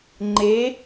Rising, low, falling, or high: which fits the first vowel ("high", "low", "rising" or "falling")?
rising